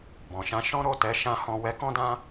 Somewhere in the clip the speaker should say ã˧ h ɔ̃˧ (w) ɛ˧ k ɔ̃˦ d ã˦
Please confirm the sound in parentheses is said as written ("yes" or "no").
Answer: yes